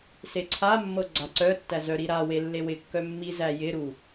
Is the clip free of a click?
no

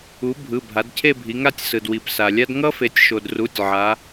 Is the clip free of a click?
yes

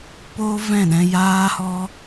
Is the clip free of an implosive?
no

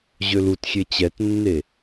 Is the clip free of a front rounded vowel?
no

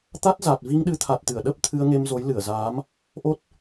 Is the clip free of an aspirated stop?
no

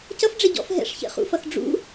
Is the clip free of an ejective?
yes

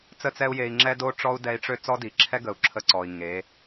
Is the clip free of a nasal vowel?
yes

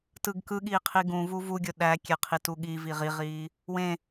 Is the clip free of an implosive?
no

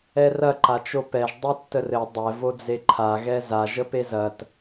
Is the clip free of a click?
no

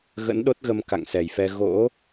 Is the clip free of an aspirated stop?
yes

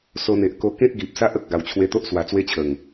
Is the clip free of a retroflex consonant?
yes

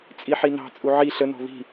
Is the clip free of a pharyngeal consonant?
no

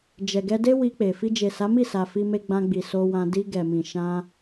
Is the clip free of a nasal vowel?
no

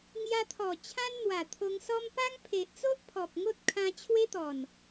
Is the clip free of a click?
yes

